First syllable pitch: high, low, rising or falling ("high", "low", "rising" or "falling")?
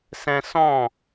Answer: high